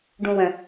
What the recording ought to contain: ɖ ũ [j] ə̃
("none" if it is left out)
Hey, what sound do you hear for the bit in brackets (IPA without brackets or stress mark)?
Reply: w